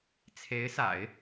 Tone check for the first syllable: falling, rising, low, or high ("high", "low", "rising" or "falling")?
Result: rising